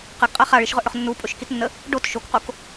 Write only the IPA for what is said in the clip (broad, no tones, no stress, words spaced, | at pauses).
qəɡqʼa χaɭiʃʁɵʔɽɵχ nːupʼɵʃkitnːə | ɖot ʃokqok